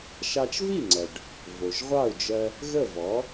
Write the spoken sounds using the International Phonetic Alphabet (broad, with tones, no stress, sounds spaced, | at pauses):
ʃ ɑ˧ t͡ʃ v i˥˩ ŋ͡ǀ ɜ˩ ɖ | v o˩ ʒ ʁʷ ɑ˥˩ u̯ d͡ʒ ɜ˧ | ɣ ə˥˩ v ɔ˩˥